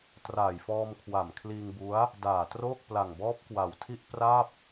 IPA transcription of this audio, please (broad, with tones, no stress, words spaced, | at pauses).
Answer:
traː˨˩jfɔː˧mkʰwa˨˩m kʰliː˧ŋbu˦˥a̯ | daː˨˩troː˥˩k̚ pla˨˩ŋbɔː˦˥p̚kwa˨˩wtʰi˥˩ʔ pra˥˩p̚